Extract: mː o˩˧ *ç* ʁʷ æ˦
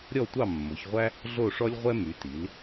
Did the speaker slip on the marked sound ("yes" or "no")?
no